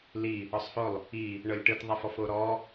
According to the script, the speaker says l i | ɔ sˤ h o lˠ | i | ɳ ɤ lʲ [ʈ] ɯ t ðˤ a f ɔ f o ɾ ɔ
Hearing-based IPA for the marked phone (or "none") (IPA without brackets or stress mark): ʈ